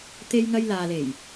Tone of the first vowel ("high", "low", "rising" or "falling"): high